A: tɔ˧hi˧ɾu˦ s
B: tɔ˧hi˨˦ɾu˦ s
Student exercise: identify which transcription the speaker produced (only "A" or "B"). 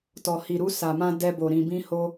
A